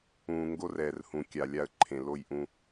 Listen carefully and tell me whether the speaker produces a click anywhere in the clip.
yes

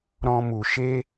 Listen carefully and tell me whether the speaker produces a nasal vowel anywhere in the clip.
yes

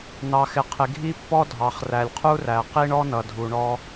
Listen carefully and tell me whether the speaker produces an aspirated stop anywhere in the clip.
yes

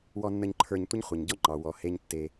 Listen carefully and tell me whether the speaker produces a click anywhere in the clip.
yes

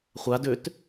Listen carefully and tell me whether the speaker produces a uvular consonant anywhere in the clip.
yes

